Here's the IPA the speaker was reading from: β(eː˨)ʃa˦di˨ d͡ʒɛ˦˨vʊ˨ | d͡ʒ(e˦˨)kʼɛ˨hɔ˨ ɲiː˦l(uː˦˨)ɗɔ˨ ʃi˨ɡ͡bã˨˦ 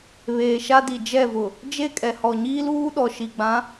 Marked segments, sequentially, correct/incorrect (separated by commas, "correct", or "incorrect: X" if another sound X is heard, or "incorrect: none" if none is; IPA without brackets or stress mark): correct, correct, incorrect: uː˦